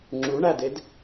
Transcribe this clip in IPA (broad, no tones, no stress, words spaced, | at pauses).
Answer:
ŋ͡ǁuɳæded